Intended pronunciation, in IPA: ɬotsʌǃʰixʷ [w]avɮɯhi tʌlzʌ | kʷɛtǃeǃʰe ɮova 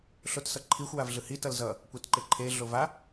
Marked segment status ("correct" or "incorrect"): correct